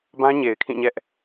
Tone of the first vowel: high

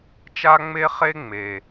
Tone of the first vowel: high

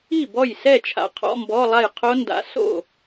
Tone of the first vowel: falling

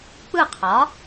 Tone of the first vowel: falling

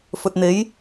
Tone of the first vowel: low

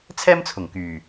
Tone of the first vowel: high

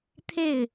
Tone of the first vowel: falling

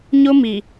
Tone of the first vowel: high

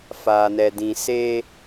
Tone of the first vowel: low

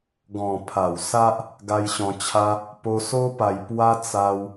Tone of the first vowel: low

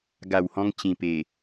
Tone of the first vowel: low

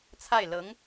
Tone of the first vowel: falling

